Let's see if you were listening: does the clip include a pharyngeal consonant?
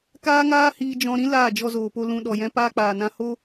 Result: no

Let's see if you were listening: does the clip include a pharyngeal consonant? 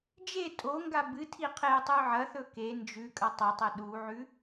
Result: yes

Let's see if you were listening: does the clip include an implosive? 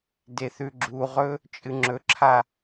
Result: no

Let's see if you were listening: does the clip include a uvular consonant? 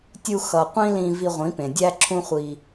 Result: yes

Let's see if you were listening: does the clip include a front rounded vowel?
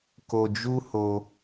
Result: no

